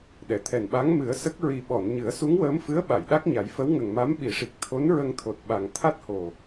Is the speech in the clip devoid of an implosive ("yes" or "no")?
no